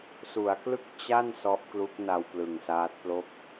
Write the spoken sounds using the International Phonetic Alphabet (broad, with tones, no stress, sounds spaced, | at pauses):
s u˩˦ a̯ k l ɯ˥˩ k̚ t͡ɕ a˥˩ n s ɔ˦˥ ʔ k l u˦˥ k̚ n a˧ w p l ɯ˨˩ ŋ s aː˦˥ t̚ p l o˥˩ k̚